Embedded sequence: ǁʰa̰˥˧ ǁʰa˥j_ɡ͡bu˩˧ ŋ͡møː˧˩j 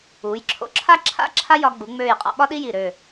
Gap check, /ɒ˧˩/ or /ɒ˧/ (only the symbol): ɒ˧